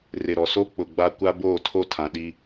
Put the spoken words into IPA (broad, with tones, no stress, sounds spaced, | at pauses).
r ɪ˨ ɾ ɔ˨ s o˦ k͡p ʊ˨ ɡ͡b a˦ kʷ a˦ b oː˦˨ tʰ o˦ tʰ ã˨ ɗ i˦